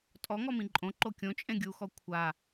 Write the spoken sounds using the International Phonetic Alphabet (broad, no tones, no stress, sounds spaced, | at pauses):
tʼ ɔ ŋ ɔ m ĩ ǃʼ õ ǃ o kʲ õ t͡ʃʼ ẽ ɡʲ u x ɔ kʷʰ a